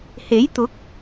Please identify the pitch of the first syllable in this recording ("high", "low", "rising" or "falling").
rising